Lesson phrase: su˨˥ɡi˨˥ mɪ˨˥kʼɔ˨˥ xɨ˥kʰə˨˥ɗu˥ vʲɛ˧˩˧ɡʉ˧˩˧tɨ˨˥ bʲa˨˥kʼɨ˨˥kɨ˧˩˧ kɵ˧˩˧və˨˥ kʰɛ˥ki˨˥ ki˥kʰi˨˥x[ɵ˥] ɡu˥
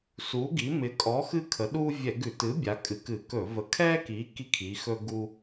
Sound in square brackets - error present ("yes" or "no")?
no